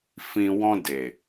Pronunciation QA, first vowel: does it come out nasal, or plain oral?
nasal